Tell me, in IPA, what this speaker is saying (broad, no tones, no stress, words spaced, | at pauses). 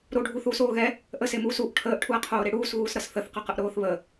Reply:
ɾoɖʱuθuːsoː ɣɛ | ʔəsemuːs uʔ ʈʰəːʔʈʰuɐ̯qʰoːɾe ɽuːsɣuːsɾʌs θəθqʌqəʔɾoːθ βə